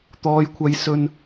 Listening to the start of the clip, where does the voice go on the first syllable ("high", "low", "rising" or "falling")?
high